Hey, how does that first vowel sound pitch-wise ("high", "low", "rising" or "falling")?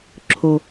low